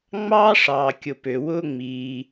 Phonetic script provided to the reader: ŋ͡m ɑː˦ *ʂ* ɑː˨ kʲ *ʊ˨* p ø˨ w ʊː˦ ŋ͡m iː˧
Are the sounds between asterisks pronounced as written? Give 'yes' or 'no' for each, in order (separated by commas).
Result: yes, yes